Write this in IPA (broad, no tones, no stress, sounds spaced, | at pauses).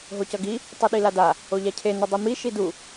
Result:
ɦ o c ʌ ɡ i | tˤ ɯ ɗ i l a d a | o ʎ a cʰ e n u dˤ i m i ʃ i d u